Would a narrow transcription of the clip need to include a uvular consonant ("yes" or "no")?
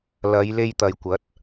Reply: no